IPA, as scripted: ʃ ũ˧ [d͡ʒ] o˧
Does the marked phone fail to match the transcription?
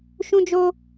no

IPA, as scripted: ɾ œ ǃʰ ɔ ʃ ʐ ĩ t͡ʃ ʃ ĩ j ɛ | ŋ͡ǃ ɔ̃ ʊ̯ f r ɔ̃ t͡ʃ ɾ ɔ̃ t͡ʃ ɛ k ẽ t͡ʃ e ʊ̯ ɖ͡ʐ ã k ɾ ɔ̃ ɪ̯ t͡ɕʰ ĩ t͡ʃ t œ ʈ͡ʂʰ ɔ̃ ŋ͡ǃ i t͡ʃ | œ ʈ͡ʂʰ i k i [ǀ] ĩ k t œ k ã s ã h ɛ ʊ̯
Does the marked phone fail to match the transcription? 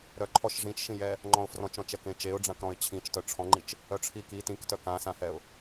yes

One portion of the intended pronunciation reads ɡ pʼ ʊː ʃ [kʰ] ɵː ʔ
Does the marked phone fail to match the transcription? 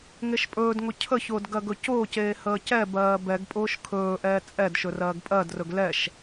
no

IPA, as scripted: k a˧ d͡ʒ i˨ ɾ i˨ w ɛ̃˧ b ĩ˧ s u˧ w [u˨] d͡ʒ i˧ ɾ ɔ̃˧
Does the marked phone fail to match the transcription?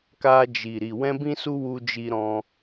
yes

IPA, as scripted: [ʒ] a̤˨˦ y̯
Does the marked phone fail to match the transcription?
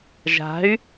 no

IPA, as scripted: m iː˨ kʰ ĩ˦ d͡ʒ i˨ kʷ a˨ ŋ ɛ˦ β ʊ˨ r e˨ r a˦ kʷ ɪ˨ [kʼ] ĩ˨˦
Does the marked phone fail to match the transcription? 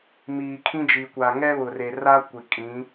no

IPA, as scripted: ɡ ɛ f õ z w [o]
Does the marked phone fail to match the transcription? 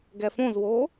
yes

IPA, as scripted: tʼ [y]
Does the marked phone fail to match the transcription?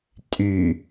no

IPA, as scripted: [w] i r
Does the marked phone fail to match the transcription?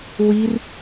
no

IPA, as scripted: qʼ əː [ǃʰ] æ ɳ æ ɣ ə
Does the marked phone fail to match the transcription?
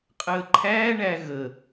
no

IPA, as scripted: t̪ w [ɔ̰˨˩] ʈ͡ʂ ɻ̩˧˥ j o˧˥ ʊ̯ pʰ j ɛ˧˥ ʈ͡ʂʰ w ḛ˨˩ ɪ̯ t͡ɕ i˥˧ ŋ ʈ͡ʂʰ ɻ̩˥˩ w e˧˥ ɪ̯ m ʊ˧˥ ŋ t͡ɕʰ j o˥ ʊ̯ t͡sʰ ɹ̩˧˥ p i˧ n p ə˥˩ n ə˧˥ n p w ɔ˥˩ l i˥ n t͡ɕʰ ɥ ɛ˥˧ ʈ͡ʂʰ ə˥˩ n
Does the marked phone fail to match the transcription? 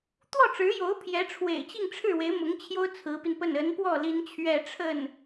yes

